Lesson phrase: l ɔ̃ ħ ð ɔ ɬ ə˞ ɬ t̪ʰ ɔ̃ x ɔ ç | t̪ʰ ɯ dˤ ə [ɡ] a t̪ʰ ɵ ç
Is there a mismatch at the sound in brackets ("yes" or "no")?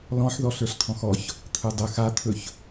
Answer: yes